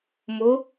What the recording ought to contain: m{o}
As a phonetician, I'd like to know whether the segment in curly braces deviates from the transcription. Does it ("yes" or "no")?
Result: no